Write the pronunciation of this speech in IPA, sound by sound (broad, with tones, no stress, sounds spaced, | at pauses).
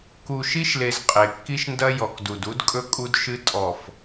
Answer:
k u˨ ʃ i˦ ʃ l e˨ z qʼ e˨ kː i˦ ʃ n d ɐ˦ j ɔ˨ k d u˨ d u˦ d kʼ ɵ˦ kʼ u˦ d ʃ ɨ˦ tʼ ɔ˨ f